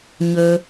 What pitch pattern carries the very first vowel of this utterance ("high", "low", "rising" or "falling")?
low